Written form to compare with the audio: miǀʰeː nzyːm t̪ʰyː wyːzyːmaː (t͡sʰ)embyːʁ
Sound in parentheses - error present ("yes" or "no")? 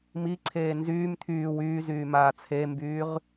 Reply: no